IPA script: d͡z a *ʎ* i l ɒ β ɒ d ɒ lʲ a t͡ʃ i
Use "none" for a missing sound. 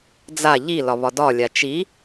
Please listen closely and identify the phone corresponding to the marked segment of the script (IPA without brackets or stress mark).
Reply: ʎ